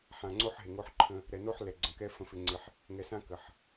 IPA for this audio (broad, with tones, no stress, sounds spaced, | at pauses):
ħ ã˨ ŋ͡ǀ o˦ ħ ɦ ɪ˨ ŋ o˦ ħ ǃʰ ə̃˦ | ɾ ɛ˨ n o˦ ħ l ɛ˨ ɡ͡ǀ ə̃˨ k ɛ˦ f ə̃˦ f ɪ˦ ŋ͡ǀ ɪ˦ ħ | ŋ ɛ˨ s ã˦ k ə˨ ħ